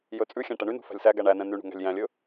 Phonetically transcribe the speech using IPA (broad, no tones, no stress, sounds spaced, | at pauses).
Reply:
j ɵ t͡sʼ ʉ xʲ æ̃ ʈ ɛ ɳ y n ṳ f æ̤ lʲ s æ ɡ æ ɳ æ n ɛ̃ n y ɳ ṳ ŋ æ̤ lʲ j æ̃ lʲ ɵ